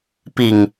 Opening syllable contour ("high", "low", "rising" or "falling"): low